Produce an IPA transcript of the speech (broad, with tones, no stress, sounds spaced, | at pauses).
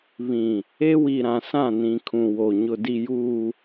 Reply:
β ĩ˨ | e˦ w i˨ ɾ ã˨ s ã˦˨ n ĩ˨ kʰ ũ˨ w o˨ ɲ ʊ˨ d i˨ j uː˨